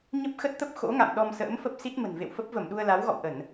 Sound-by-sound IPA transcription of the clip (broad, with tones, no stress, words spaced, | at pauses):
ɲə˦˥p̚xə˦˥t̚t̪ə˦˥p̚ xo̰˧˥ŋa̰˧˨m ɗɔ˧msə̰ː˧˥mfə˦˥p̚ si˦˥t̚ mə̤˨˩nvḛ˧˨wfə˦˥p̚ və˧˩mɗu˧ə̯la˨˦wɣɔ̰˧˨w ʔə˧˩˨n